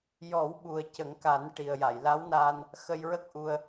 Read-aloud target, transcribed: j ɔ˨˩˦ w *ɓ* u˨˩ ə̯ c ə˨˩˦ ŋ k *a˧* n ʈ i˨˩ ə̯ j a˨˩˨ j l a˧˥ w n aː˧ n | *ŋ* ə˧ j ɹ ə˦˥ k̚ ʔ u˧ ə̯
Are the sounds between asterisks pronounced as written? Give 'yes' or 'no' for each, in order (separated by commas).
yes, no, no